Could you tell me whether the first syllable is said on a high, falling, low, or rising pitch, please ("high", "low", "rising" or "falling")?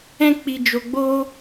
high